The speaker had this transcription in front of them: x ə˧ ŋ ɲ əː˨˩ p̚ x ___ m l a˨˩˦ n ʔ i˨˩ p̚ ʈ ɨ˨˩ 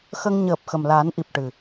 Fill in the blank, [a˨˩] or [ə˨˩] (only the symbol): ə˨˩